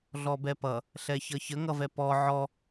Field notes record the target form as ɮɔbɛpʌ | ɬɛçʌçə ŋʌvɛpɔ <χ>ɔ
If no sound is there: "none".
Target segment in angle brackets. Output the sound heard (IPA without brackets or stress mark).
ʕ